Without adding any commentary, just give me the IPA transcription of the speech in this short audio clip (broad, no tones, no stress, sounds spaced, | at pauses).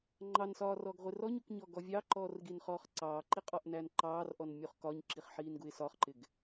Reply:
ŋ͡ǃ ɑ n s ɒː r ɔ ɡ ʁʷ ɪ r ɔ ɲ u k ɲ ɔ ɡ ɔ vʲ ɑ ǃ ɔː r ɡ i n χ ɔː χ ǀ ɑː ǃ i qʼ ɒ ʔ n æ n ǃ ɑː r ʔ ɔ n mʲ u χ k ɒ ɲ ǁ i χ ħ iː n ɡ u ɪ̯ s ɒ χ ǃ ɪ ɡ